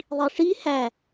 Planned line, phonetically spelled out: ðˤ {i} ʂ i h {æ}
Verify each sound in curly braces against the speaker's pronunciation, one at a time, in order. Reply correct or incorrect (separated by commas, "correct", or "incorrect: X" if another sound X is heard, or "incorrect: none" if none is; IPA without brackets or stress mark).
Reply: correct, correct